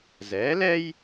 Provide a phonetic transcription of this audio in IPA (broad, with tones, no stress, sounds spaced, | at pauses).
z ɛː˩˥ l ɛ˥ j